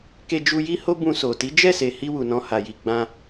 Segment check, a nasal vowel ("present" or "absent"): present